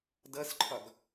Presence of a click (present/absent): present